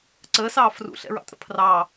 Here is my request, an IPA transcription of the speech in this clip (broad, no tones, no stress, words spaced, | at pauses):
ǀəːsɑː frṵɬɛ̰ɹɑ̰tʼə̰ pʰrɑː